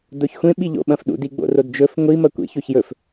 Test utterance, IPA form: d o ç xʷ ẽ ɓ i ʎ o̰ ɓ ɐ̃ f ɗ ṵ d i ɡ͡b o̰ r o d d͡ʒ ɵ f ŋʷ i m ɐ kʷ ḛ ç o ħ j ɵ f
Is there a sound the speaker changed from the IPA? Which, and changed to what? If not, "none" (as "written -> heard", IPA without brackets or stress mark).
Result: ħ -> ç